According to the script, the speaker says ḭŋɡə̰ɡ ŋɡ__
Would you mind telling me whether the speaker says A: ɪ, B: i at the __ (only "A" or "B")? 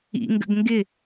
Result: A